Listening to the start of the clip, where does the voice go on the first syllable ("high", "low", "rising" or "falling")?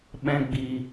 high